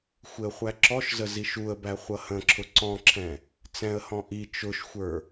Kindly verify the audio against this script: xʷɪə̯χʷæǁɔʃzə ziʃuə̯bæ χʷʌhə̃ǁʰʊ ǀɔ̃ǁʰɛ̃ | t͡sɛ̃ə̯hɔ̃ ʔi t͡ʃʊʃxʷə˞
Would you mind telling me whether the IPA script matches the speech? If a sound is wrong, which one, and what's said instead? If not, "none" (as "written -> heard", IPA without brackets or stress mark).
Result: none